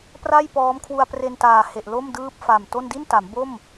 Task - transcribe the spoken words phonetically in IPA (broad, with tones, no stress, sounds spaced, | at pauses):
p r a˥˩ j p ɔː˦˥ m kʰ w u˧ a̯ p r e˧ n t aː˨˩ h e˨˩ ʔ l o˥˩ m d ɯː˥˩ p̚ f a˨˩ m t o˥˩ n d i˥˩ n t a˩˦ m b o˥˩ m